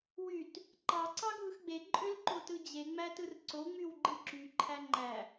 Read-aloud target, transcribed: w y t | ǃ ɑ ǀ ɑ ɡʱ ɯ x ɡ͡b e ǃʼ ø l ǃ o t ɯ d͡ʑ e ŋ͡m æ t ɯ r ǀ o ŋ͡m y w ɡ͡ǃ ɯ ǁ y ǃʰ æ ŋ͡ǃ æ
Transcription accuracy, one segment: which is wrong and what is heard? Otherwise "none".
none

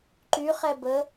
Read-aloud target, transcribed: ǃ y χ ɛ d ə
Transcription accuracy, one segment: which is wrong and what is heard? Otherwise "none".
d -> b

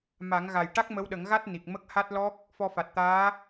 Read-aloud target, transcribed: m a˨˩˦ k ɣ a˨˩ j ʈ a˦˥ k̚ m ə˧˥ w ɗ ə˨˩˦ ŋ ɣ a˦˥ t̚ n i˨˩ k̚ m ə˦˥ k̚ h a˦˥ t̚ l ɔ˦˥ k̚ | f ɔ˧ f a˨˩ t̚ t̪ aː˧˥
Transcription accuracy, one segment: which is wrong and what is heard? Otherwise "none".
k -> ŋ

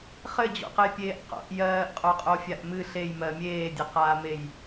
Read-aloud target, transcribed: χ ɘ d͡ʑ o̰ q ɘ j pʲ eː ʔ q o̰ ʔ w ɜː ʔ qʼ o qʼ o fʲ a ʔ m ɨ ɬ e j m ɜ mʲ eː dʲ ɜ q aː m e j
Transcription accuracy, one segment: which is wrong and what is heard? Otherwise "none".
w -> j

